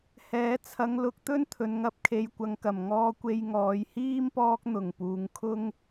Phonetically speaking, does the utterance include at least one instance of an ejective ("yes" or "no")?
no